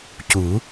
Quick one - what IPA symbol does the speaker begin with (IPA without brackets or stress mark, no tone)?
c